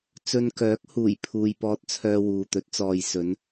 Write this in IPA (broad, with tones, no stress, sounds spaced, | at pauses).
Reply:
t͡s ɵ˧ n k œː˨˥ k̚ h uː˨˩ j pʰ uː˨ j p ɔː˧ t̚ t͡sʰ œː˧ w uː˨ t̪ ɵ˨˥ t̚ t͡s ɔː˧ j s ɵ˨˧ n